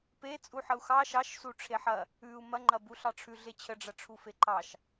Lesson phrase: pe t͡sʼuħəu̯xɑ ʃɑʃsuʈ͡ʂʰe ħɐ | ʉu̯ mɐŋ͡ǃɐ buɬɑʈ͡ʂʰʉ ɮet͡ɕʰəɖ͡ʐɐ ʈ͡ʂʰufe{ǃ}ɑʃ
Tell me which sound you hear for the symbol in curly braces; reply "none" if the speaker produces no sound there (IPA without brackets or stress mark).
ǃ